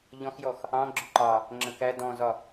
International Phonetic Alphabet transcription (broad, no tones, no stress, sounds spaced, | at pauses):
ʎ ɔ̃ x j ɔ x | ɑ̃ ɡ͡ǁ ʊ ǃ ɑ | ŋ͡ǁ ə̃ k æ d ɔ̃ z ɒ